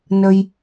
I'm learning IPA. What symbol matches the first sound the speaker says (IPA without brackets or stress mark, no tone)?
n